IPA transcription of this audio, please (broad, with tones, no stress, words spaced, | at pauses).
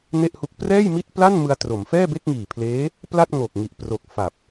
ne˥˩ʔhu˦˥k̚ prɛː˥˩jmi˥˩t̚pla˥˩n mɯ˧a̯tro˩˦m fɛː˥˩be˥˩k̚ŋiː˨˩pʰleː˦˥ | pla˥˩t̚ŋo˨˩k̚ ŋi˨˩ʔ pro˨˩k̚ fa˨˩p̚